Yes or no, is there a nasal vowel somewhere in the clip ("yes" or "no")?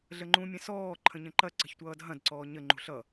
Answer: yes